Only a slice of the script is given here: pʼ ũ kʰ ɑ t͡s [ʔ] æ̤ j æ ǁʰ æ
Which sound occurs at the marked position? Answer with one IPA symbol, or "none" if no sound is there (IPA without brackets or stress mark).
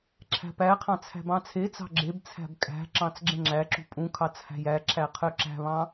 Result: h